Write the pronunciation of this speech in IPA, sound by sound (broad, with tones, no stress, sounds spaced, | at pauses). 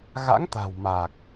ɣ a̰˧˥ ŋ t̪ a̤˨˩ w m a˨˩ k̚